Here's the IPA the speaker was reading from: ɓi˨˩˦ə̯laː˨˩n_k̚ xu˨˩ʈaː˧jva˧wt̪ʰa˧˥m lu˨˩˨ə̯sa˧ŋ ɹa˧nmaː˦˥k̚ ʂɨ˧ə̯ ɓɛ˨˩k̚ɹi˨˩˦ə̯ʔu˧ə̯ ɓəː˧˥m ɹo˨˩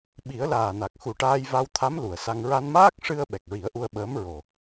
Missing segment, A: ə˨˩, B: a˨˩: B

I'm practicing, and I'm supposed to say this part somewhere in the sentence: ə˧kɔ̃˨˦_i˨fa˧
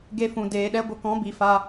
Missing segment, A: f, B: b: B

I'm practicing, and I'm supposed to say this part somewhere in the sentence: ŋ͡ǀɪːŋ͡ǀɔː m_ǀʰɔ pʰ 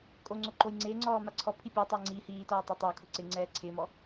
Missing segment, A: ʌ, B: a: B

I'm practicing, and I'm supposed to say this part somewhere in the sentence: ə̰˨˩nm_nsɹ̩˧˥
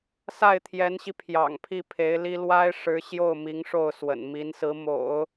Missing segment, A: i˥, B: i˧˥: B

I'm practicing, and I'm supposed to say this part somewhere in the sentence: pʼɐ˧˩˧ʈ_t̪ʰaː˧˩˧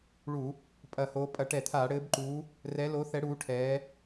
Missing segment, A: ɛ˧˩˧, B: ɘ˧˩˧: A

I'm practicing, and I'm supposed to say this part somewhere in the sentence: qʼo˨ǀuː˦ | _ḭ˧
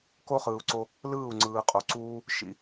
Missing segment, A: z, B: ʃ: B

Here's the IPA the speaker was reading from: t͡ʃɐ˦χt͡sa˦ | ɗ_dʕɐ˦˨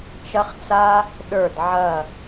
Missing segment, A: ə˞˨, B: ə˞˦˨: B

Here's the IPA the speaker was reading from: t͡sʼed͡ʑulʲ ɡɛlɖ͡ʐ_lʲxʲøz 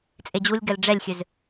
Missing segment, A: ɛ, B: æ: A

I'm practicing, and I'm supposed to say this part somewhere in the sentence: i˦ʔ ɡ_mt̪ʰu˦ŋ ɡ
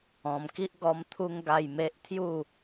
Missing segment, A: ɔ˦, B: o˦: A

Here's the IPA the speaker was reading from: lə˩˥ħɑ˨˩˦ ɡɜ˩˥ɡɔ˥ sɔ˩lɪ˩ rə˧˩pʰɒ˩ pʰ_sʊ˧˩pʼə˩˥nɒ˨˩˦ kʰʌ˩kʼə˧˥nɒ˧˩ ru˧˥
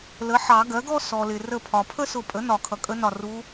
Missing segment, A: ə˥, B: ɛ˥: A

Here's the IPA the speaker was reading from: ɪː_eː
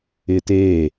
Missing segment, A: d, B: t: B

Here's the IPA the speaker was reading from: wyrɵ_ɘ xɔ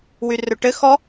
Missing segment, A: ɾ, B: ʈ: B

